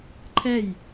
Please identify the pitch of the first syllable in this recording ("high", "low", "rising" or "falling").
falling